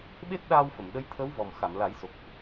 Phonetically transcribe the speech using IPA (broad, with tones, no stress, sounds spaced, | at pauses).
ɓ e˦˥ t̚ ɗ aː˧ w f ə˨˩˨ m ɗ ə˧˥ j t̪ʰ ə˧˥ w v ɔ˨˩ m x a˨˩˨ m l a˨˩˦ j s o˨˩ k̚